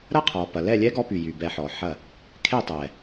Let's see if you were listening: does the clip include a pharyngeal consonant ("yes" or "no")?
yes